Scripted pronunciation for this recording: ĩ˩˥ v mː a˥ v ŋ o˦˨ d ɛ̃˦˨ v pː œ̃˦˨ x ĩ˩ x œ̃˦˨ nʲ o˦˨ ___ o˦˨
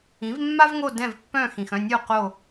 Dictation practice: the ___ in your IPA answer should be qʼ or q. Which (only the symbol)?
q